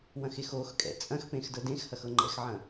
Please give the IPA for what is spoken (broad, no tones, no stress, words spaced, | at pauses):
wɐ̃xexoxkʼɛ̰ t͡sʼɐ̃xpẽx dɤdẽxhɐx ɤŋ͡ǃɛ̰xʕɐ̃